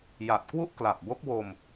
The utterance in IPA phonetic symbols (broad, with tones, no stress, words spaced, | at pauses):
ja˨˩t̚kwu˥˩ʔ kla˨˩p̚bo˦˥k̚wo˧m